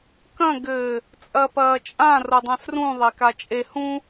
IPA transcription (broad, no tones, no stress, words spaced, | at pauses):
kɐ̃ ɡɘ | t͡sʼɐpɐːt͡ʃʼã rodˤãsrũ ðˤekat͡ʃʼe hũ